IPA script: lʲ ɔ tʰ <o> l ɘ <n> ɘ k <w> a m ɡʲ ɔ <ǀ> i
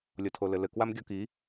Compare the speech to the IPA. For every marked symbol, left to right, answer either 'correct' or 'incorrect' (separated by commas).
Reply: correct, incorrect, correct, incorrect